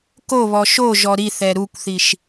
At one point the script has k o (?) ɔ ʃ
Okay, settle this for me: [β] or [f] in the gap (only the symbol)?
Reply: β